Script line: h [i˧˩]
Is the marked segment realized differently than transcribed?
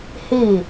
no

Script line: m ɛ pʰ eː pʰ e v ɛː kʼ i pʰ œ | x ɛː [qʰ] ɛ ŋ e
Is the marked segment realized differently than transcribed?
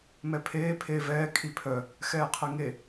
no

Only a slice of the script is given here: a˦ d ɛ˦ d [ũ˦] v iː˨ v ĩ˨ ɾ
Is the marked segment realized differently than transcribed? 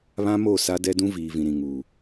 no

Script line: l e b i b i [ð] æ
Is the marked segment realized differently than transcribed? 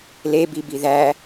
no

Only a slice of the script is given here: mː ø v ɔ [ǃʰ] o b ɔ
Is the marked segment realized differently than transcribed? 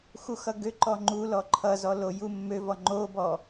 yes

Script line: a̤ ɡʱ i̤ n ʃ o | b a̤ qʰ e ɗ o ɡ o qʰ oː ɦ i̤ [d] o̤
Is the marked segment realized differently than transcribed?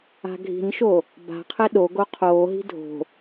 yes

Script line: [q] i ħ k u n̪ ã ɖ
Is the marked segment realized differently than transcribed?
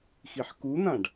yes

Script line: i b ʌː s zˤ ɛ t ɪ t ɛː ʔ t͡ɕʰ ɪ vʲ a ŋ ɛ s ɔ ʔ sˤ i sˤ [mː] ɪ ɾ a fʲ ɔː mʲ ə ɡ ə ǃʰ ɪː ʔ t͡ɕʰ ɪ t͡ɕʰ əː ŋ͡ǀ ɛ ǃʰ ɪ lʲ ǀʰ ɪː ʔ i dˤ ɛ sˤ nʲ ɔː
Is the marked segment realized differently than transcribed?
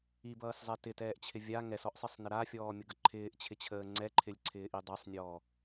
yes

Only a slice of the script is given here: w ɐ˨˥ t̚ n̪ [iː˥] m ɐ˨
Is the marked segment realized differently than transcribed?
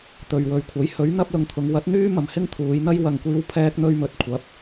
yes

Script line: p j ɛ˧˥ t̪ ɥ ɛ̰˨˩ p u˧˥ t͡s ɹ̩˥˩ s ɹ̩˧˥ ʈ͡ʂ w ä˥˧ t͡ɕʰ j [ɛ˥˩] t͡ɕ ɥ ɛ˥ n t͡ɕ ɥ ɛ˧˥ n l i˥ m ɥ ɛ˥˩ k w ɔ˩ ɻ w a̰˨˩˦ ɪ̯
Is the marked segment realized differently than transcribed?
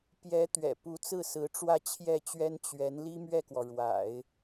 no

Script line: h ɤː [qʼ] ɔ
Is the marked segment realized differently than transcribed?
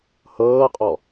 no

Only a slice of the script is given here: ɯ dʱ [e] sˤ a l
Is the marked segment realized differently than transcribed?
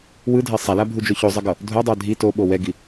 no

